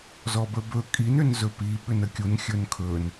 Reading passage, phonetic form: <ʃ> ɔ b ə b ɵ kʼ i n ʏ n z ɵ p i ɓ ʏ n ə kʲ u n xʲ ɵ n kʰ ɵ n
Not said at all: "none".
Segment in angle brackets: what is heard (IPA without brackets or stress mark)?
z